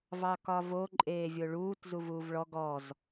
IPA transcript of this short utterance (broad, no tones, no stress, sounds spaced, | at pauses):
v ɑ k ɒ v o ǃʼ eː vʲ o ɭ uː t z u v uː v ɭ ɔ ɡ ɔ z